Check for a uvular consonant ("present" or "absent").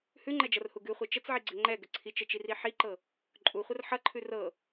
present